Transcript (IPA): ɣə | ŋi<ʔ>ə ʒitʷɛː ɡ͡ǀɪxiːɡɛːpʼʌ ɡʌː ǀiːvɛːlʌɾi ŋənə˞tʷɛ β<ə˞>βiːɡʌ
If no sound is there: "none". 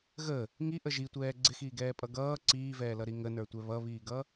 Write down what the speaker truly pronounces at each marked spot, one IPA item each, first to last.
ʔ, ʌ

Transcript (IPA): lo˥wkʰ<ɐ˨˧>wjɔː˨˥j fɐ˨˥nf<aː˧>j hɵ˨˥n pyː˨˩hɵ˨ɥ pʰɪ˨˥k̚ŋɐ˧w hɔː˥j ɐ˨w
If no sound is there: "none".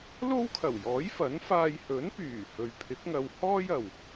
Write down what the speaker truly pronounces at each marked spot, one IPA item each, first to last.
ɐ˨˩, aː˧

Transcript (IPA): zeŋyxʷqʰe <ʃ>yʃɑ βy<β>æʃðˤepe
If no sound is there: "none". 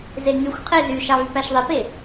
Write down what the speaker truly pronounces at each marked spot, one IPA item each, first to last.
z, p

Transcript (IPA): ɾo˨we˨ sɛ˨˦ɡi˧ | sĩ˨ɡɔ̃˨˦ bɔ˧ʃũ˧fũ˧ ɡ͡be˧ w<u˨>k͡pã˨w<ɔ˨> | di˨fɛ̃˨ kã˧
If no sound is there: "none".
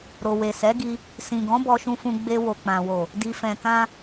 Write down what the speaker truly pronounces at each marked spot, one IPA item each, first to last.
o˨, o˨

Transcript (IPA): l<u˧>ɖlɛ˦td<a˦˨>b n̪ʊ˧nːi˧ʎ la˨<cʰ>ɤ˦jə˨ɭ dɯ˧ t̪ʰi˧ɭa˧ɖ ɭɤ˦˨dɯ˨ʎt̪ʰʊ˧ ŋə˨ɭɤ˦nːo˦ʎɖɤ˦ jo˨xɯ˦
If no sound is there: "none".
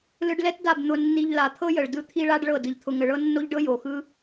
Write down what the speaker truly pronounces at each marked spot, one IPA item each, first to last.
ɯ˧, a˦˨, t̪ʰ

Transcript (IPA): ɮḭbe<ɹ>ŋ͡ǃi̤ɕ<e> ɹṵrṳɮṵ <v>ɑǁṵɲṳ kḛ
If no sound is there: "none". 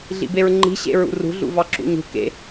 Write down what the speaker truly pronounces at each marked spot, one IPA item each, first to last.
ɹ, ḛ, v

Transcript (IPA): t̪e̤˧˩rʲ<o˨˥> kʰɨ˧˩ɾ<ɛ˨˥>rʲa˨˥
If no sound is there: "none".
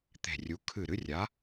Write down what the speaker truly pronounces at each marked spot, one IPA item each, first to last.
u˨˥, ɨ˨˥

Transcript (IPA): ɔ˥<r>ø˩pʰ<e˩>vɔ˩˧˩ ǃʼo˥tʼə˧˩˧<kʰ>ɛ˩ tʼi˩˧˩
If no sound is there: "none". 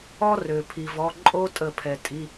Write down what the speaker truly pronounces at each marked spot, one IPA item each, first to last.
r, i˩, pʰ

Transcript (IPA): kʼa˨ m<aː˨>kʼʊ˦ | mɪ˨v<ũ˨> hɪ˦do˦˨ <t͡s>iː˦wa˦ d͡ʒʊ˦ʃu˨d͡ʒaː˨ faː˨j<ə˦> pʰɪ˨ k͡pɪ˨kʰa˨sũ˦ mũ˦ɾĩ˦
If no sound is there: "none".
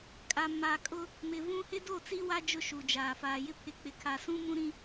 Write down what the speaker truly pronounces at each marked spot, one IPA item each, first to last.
aː˨, ũ˦, t͡s, ɪ˦

